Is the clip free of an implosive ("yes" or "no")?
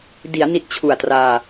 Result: yes